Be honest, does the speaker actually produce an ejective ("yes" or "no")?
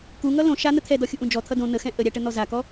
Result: no